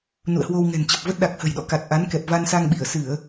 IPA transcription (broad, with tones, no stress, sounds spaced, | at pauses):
n ṵ˧˨ ə̯ h w o˧ w ŋ ɛ̤˨˩ n t͡ɕ ə˨˩ p̚ v ə˦˥ t̚ ɗ a˨˩ k̚ h ə̤˨˩ j ɗ ɔ̰˧˨ k a˨˩ t̚ ʔ a˨˦ n k ɛ˨˩ p̚ v a˧ n s a˧ ŋ ɓ i˧˩ ə̯ s ɨ˧˩˨ ə̯